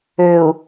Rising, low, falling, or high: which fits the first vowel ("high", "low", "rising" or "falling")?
low